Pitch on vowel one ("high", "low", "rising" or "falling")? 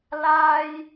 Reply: high